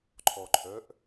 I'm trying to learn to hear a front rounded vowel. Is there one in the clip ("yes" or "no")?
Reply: yes